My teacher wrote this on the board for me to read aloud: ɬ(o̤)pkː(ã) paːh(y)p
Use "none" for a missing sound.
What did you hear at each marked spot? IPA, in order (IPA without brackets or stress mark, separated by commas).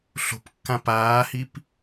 o̤, ã, i